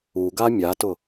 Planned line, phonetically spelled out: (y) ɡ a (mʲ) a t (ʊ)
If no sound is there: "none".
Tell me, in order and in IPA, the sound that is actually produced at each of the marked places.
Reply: u, mʲ, ʊ

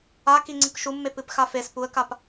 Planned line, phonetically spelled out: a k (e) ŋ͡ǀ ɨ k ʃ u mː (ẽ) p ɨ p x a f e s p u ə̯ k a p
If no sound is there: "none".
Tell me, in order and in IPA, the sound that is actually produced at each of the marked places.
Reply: i, e

